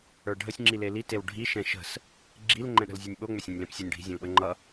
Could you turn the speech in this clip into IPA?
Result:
ə˞ ɖʱ ə sʲ ŋ͡ǁ i l e l i t e w ɖʱ i ʃ ɛ̃ ʃ ə̤ s | ɡ͡ǁ i l ŋ͡ǃ ɛ̃ ɗ ə̤ l zʲ ə˞ nʲ ɓ o ŋ͡m ʏ sʲ ɛ̃ nʲ l ɛ̃ p sʲ u nʲ ɖʱ i̤ zʲ ɛ̃ l ɓ ə ŋ͡ǃ ʌ

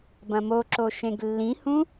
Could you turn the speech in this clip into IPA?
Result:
b ɐ̃ m o ǁ o ʃ ẽ ɡ lː ĩ h ũ

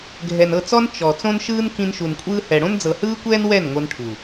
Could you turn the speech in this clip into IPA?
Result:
ɡʱ ɛ˨ n ɤ˦˨ t͡s ɔ˦ n t͡ʃ ɔ˨ t͡s õ˦ n ʃ ɯː˦ n k ĩ˧ n ʃ u˨ n kʷʼ ɯː˧ h ɛ˨ ɽ õ˦ n d͡z ɤ˨ h ɯː˦ kʷ ɛː˦ n w ɛ˦˨ n ŋʷ ɤ˧ n ʈʰ u˨

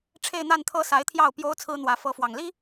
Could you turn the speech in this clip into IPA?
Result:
ʈ͡ʂʰ e˥˧ ɪ̯ n̪ a˥˩ n t̪ʰ ɤ˥ s a˧˥ ɪ̯ t̪ʰ j ɑ˥˩ ʊ̯ p j o˥ ʊ̯ t͡sʰ ɹ̩˥ n̪ w ä˧˥ f ɤ˧˥ f w ɑ˨˩ ŋ l i˥

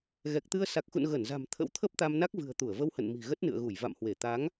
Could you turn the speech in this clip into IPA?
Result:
ɣ ɛ˨˩ k̚ t̪ ɨ˧ ə̯ s a˨˩ k̚ x ṵ˧˨ n ɣ ə˧˩ n z a̤˨˩ m t̪ʰ ə̰˧˥ w t̪ʰ ə˦˥ p̚ t̪ a˧ m n a˦˥ k̚ v ɨ̤˨˩ ə̯ t̪ u˧˩ ə̯ v ə˧ w h ə̰˧˨ n m i̤˨˩ ɣ ə˦˥ t̚ n ɨ̰˧˨ ə̯ ɣ u˧˩ j v a̰˧˨ m h w e˧˩ t̪ a˨˦ ŋ

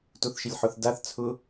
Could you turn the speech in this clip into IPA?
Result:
t o θ ʃ ɪ lʲ ħ ʊ θ d a θ t͡sʰ ʊ

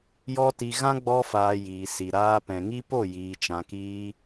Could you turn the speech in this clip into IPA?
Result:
j ɔ˦ t i˧ ɣ ã˦ ɡ͡b ɔ˧ f aː˨ j iː˨ s i˨ ɾ aː˧ p ɛ̃˨ ŋ i˦ p o˦˨ j iː˨ t͡ʃ ã˨ k iː˧

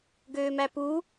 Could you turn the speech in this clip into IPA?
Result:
ɡ øː m æ p u

